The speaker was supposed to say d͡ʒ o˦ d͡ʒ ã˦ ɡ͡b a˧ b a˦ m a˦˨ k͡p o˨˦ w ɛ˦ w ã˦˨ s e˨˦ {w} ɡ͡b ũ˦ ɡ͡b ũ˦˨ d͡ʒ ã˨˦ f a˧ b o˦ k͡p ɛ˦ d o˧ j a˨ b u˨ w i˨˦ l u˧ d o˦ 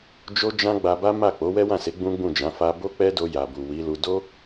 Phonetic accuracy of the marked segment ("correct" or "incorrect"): incorrect